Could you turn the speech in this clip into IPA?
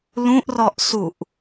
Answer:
l ũ ʔ r ɔ ʔ s u ʔ

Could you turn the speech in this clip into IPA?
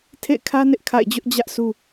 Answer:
tʰ ḛ˦˨ ɪ̯ kʰ ä˦ n ɪ˦ ʔ kʰ a̰˦˨ ɪ̯ d͡ʑ ʊ˦ ʔ d͡ʑ ä˦ ʔ sʰ u˦

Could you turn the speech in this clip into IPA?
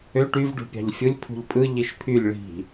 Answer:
ø ʈ y v ɖ ṳ pʲ ɑ̤ ʎ fʲ ɯ lʲ pʰ ṳ ʎ pʼ ɯ ʎ i ʃ pʰ y lʲ ɭ i̤

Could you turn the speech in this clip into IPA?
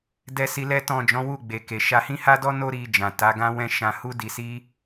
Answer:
d ɛ˧ s i˧ l ɛ˦ t ɔ̃˦˨ d͡ʒ ɔ̃˨˦ w u˦˨ ɡ͡b e˨ k e˨ ʃ a˧ h ĩ˦ h a˦ d ɔ˦ n o˦ ɾ i˧ d͡ʒ ã˨ t a˨˦ ɡ ã˦ w ɛ̃˦ ʃ ã˧ h u˦ d i˧ s i˦

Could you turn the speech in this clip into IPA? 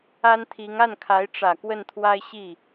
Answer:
a˥ n t̪ʰ i˧˥ ŋ a˥˩ n kʰ a˧˥ ɪ̯ ʈ͡ʂ ä˨˩ k w ə˥˩ n t̪ʰ w a˥ ɪ̯ ɕ i˥˩

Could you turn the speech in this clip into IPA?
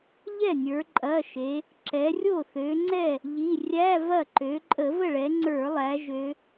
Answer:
ʎ ɛ˥˩ nʲ ə˞˩˧ ǃʼ ɐ˩˧˩ ʃ e˩˧ | ǁ ɛ˩˧ rʲ o˥˩ θ ø˩˧ ŋ͡ǀ ɛ˥˩ | ʎ i˩˧˩ rʲ æ˧˥˧ v ɐ˥˩ ǃ ø˩˧ ǃʼ ə˧˩˧ v ə˥˩ ɭ ɛ˩˧ ŋ͡ǀ ə˞˧˩˧ lˠ æ˩˧ ʒ ø˩˧

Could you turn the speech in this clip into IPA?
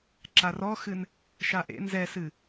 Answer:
ǁ a r ɔ x ɨ n | ʃ a ʔ ḛ n z ɛ s ɨ

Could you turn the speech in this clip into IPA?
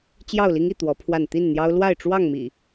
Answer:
t͡ɕ j ɑ˥˨ ʊ̯ l i˦ ŋ i˥˨ t̪ w ɔ˨˦ pʰ w a˥˨ n t̪ i˥˨ n n̪ j ɑ˦ ʊ̯ l w a˥˨ ɪ̯ ʈ͡ʂ w ɑ˥˨ ŋ m ḭ˨˩

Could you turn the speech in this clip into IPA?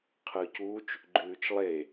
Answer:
qʰ ɯ c uː t͡ʃ | ɡ͡ǃ ʉː t͡ʃ lˠ e

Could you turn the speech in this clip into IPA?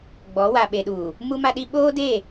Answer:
ɡ͡b ɔ˨˦ w a˨ ɓ e˨ ɗ uː˨ | m u˦ m a˦ ɗ i˦ ɓ oː˦ d eː˦˨

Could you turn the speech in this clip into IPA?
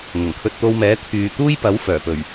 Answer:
ŋ ʊ˨˩ ŋ kʰ ɵ˧ t̚ t̪ o˧ w m ɛː˨˥ t̪ʰ yː˨ t̪ uː˥ j p ɐ˨˥ w f œː˨˩ p ɵ˨˩ ɥ

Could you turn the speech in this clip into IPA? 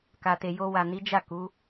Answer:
k a˨ t e˨ j o˧ w a˨ n i˨˦ d͡ʒ a˦˨ k u˨˦

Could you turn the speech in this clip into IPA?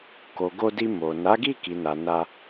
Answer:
k o˨ ɡ o˧ d i˧ m o˨ n a˨˦ ɡ i˦˨ k i˨ n a˨ n a˧

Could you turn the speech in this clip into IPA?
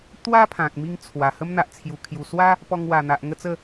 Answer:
t̪ w a˦ pʰ ã˨ k̚ m i˧ ŋ t͡sʰ w a˨˩ h ə˦ m n̪ a˨ ʔ t͡sʰ j u˨˩ kʰ j u˨˩ s w a˦ | p ɔ˧ ŋ w a˨˩ n̪ a˨ ʔ ŋ ə˥˧ t͡s ə˥˧

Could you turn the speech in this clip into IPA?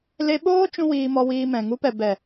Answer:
l e˧ ɓ oː˦ t͡ʃ ũ˦ w iː˧ m ɔ˧ w iː˧ m ɛ̃˨ ŋ u˨˦ p ɛ˨ b ɛ˨

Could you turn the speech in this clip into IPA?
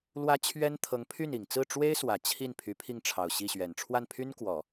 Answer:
l w ä˥ t͡ɕʰ ɥ ɛ˥ n t̪ʰ ɤ˧˥ ŋ pʰ y˥˩ n i˨˩ ŋ t͡s ɹ̩˥˩ ʈ͡ʂ w e˥ ɪ̯ s w ä˨˩ t͡ɕʰ i˥˩ n pʰ y˧˥ pʰ i˥˩ ŋ ʈ͡ʂʰ ɑ˨˩ ʊ̯ ɕ i˥˩ ɕ ɥ ɛ˨˩ n ʈ͡ʂʰ w a˥˩ n pʰ y˥ n k w ɔ˨˩˦

